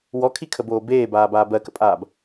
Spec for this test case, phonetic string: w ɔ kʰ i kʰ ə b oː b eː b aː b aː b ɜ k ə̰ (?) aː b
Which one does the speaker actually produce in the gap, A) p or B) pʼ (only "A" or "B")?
B